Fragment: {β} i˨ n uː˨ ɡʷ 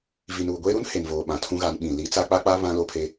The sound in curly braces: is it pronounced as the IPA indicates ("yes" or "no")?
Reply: no